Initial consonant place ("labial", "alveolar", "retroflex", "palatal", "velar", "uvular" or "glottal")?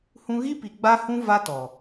glottal